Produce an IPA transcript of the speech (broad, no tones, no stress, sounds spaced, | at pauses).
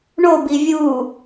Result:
ɳ o b i vʲ u